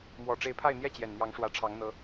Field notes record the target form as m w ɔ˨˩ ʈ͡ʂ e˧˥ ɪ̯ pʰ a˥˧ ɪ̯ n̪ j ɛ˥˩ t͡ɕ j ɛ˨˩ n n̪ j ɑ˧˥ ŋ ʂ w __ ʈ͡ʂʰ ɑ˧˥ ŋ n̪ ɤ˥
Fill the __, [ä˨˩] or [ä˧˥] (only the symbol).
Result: ä˧˥